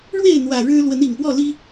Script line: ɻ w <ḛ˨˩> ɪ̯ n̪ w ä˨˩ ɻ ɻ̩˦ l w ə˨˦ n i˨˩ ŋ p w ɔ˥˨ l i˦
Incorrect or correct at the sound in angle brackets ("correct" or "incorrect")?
incorrect